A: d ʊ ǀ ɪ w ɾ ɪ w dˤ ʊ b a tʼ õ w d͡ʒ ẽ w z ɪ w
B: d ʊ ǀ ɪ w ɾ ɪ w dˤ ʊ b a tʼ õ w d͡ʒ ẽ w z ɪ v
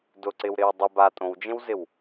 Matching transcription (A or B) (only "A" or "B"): A